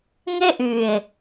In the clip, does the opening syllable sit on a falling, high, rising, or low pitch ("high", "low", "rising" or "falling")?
high